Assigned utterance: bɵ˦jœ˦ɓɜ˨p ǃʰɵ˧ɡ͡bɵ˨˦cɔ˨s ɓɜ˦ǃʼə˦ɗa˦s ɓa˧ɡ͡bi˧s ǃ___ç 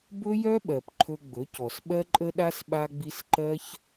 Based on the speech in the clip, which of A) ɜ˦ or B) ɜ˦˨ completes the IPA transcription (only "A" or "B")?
A